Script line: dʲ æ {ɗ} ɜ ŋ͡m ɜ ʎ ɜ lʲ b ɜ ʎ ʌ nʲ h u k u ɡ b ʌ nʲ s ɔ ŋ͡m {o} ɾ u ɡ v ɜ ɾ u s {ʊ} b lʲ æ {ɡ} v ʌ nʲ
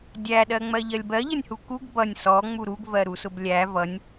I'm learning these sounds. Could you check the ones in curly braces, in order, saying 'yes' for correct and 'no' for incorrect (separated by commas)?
yes, no, yes, no